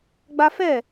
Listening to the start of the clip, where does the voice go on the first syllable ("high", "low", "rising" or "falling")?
high